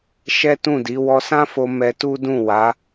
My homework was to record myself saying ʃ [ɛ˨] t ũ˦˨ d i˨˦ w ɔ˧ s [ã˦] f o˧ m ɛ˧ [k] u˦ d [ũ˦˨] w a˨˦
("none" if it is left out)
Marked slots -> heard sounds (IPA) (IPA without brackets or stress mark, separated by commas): ɛ˦, ã˦, t, ũ˦˨